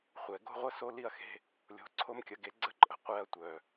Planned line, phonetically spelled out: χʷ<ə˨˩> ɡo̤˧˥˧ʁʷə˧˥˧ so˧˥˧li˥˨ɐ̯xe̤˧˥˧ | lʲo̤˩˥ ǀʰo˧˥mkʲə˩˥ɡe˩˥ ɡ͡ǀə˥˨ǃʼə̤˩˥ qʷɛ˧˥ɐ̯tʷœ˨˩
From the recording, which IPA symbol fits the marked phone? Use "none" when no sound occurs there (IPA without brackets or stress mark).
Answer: ɛ˨˩